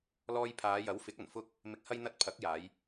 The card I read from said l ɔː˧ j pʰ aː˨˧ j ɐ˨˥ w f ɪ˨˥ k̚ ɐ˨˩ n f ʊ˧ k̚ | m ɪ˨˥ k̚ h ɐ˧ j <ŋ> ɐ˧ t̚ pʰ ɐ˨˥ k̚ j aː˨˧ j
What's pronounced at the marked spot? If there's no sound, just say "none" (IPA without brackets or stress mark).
n̪